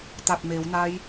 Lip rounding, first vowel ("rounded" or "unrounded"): unrounded